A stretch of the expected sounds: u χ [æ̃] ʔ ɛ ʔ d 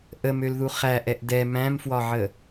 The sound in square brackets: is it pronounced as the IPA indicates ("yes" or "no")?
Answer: no